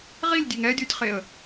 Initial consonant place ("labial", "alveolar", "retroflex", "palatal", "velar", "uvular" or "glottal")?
uvular